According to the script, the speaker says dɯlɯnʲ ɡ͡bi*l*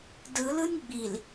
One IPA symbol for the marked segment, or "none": l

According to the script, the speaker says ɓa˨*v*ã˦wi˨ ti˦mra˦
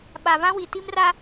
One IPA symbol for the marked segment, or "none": v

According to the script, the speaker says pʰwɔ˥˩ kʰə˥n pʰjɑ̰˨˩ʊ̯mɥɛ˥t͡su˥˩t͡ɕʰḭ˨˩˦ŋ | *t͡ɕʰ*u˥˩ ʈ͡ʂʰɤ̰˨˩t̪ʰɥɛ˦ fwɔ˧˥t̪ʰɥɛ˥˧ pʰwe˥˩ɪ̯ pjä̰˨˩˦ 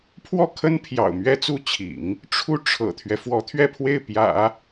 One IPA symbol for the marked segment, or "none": ʈ͡ʂʰ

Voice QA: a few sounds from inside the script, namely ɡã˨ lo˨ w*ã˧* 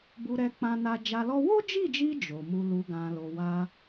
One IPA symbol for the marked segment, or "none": a˧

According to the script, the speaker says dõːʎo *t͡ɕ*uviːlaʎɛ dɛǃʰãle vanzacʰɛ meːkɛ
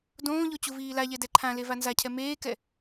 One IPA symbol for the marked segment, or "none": t͡ɕ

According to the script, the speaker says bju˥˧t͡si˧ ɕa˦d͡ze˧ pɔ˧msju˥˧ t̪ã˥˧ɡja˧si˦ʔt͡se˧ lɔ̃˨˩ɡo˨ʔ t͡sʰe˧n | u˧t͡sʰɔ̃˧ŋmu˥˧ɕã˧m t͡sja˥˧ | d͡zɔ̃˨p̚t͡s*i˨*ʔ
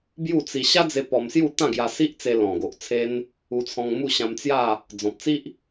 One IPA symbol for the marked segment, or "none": i˦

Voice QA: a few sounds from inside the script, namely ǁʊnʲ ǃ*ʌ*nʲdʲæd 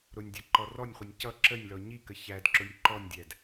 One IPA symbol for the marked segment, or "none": ɔ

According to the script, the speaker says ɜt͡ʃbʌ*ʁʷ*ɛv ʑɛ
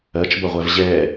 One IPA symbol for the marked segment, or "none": ʁʷ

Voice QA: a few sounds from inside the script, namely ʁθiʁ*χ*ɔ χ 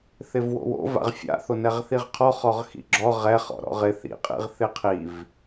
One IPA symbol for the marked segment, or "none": qʰ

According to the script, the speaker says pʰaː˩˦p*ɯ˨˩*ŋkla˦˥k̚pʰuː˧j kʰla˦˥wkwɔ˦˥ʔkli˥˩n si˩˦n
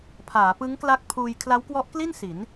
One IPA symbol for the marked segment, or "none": ɯ˦˥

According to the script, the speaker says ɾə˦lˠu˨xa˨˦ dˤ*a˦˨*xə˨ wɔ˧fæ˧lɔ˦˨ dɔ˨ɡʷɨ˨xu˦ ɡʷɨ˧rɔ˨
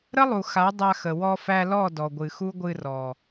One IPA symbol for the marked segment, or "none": a˧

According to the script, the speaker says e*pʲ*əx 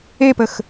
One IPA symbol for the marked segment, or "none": p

